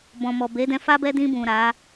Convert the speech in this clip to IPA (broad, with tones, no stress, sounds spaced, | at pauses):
b ɔ̃˨ m ɔ˨ b e˨˦ d ɛ̃˧ f a˦ b ɛ˦ d ĩ˧ b ũ˨ ɾ a˨˦